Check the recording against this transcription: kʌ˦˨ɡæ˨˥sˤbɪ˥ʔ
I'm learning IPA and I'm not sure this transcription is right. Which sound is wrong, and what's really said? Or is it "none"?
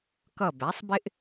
ɡ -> b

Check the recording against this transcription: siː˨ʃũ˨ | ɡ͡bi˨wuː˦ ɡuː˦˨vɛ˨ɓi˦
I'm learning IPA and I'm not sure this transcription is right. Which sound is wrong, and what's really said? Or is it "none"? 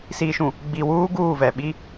none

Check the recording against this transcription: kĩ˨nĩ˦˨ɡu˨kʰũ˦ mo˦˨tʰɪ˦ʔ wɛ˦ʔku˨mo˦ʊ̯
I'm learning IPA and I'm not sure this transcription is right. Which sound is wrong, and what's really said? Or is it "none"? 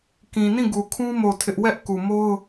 none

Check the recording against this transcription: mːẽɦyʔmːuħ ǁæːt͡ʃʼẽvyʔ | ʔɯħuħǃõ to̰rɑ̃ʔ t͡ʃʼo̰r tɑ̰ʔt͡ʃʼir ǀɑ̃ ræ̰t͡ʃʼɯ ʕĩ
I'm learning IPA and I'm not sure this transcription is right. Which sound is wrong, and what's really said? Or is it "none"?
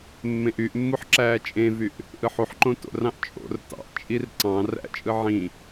ɦ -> ʔ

